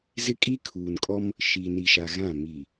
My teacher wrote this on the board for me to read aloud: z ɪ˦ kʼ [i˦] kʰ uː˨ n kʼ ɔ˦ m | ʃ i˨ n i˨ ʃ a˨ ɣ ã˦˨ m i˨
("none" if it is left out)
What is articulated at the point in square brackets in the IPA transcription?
i˦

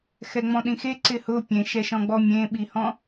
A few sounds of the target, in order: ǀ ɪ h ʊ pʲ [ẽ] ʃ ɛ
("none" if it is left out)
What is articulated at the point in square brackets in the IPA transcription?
ẽ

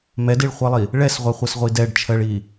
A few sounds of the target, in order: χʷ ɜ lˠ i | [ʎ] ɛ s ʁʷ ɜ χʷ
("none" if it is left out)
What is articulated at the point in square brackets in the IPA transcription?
ɭ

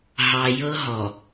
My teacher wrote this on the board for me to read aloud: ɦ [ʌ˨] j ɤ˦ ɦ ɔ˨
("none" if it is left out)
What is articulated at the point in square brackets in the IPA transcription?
ɑ˨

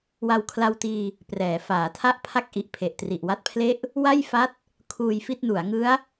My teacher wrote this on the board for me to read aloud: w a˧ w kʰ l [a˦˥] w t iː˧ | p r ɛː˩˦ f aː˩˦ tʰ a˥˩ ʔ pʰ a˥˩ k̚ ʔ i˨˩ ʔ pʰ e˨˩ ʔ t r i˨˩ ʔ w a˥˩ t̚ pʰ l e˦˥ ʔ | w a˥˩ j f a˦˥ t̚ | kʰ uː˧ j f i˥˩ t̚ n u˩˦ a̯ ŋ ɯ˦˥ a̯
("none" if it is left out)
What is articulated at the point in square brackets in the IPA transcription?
a˧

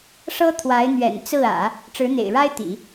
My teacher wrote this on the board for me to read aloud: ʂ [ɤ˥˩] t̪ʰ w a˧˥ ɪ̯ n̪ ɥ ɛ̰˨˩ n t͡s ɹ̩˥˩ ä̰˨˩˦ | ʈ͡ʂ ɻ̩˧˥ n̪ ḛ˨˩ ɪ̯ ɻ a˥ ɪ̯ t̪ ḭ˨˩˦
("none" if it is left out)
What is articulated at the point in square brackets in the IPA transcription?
ɤ˥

